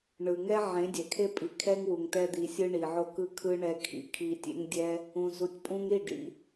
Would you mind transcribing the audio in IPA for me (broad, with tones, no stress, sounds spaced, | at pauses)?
ɳ ɯ˨ ŋ ɛ˦ ʕ ẽ˨˦ dʲ ɛ˨ kʰ e˦ pʼ i˨ kʰ ɛ˦ ŋ w u˨ ŋ t ɛ˧ d̪ i˨ sʲ ɯ˧ ɳ i˨ ʕ o˦ k ɯ˧ kʰ ɯ˧ ɳ ɛ˧ kʰ ḭ˧ kʰ i˧ tʲ ḛ˦ ŋ dʲ ɛ˦ | ũ˨ z u˨ tʲ pʼ ũ˧ ŋ ɾ i˦˨ ɖ ḭ˦